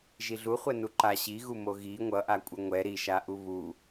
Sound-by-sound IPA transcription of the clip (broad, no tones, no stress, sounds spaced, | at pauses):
ʒ i ɮ u χʷ ɛ n u ǃ a ɕ i ɣ u m o ɣ i ŋʷ ʌ ʔ a kʷʼ ʌ ŋʷ ɛ ɾ i ʃ a ʔ u β u